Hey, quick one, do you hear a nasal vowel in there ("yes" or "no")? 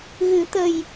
no